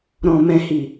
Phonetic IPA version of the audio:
ɾ ɔ̃˨ m ɛ̃˨ h i˨

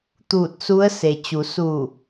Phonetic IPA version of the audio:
t̪ uː˧˩ t̚ s u˧˥ ə̯ s e˩ t͡ɕ u˩˧ s u˧˩

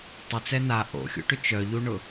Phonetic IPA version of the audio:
tˤ ʏ t͡s ɛ n a ʔ o̰ xʲ ṵ ʈ ʏ t͡ʃ œ ʎ u ɳ ʊ

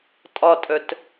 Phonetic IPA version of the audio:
tʼ ɒ tʼ œ t

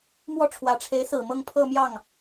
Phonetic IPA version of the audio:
m w ɔ˥˩ ʈ͡ʂʰ w ä˨˩ ʈ͡ʂʰ e˧˥ ɪ̯ s ɹ̩˨˩ m ɤ˥˧ ŋ pʰ ɤ˥˧ m j ɑ˥˩ ŋ

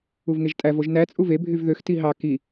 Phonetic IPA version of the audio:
u v ŋ e ʒ tʼ æ v o ʒ n æ t͡sʼ u v e bʱ y v ð ø x t i ɦ ɑ k i

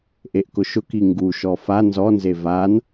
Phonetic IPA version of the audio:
ʔ e ʔ k ʊ ʃ ʊ k i ŋ ɡ u ʃ ɔ f a n z ɔ n z e v a n

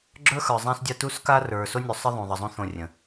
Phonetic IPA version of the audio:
ɡ͡ǁ ə˞˦ x ə˞˨ zˤ ã˦ s dʲ a˦ t u˦ s k a˦ r ə˞˨ s o˦ nʲ u˨ sˤ ɪ˦ ðˤ ũ˨ ðˤ ə˨ zˤ ũ˦ θ õ˦˨ rʲ ə̃˨

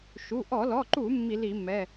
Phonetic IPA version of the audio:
ʃ u˩˧˩ ʔ ɔ˧˩˧ l ɔ˩˧˩ ǃ u˧˩˧ mː i˧˩˧ l i˧˩˧ mː ɛ˩˧˩

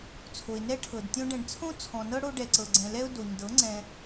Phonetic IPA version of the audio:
t͡sʰ o˨ ɪ̯ n ɛ˦ ʈʰ ɤ˨ d tʲ õ˧ ɖ ɛ̃˨ ɖ t͡sʰ õ˦ t͡sʰ ɔ̃˨ n ɤ˦ ɽ o˧ ɖ ɛ˨ ǀ ɤ˨ ɡ͡ǀ ɛ̃˨ l ɛ˦ ʊ̯ d o˨ ɲ d ɤ˨˦ ŋ͡ǀ ɛ̃˧

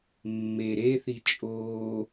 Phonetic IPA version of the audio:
mː e ɾ e θ i t͡ʃʼ oː

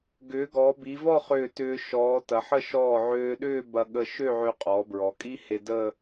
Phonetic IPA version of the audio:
ɡ ʏː˩˧ ɡ ɔ˩˧ b i˩˧ v ɔ˥˧ χ ʏː˧˩ t ʏː˧ ʃ ɔː˩˧ t ɐ˩˧ ħ ə˥˧ ʃ ɔː˧˩ ʕ øː˧ ɗ ʏː˥˧ b ɐ˧ ɠ ə˧ ʃ ø˥˧ ʕ ø˧ qʼ ɔː˩˧ b ɹ ɔ˩˧ kʼ i˥ h e˧ d ə˥˧

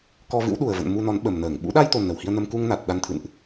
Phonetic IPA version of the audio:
k ɔ˧ v ɨ̰˧˥ w ɗ u˨˩ ə̯ v ə̰˧˨ n m u˧ n ɔ˨˦ n ɓ ə˨˩ m n əː˧˩ ŋ ɓ ṵ˧˥ ɗ a˧ j t̪ o˨˩ n ə˧˩ w h i˧ ə̯ n ə˧ m k u˧ ŋ n a˨˩ t̚ ɗ a˧ n t̪ʰ ɨ̰˧˨ n ʔ

